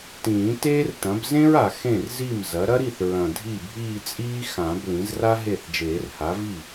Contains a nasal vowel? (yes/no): yes